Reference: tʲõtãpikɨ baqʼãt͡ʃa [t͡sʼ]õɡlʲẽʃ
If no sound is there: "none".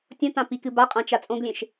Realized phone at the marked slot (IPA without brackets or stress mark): t͡sʼ